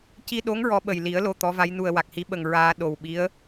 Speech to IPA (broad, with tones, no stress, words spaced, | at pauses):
ci˧ɗo˧˥ŋ ɹɔ˧˥ɓə˨˩jli˨˩˦ə̯ lo˧t̪ɔ˧˥va˧˥jnu˧ə̯ wa˨˩k̚hi˧˥ɓə˨˩ŋ ɹaː˧ ɗo˨˩w ɓi˧˥ə̯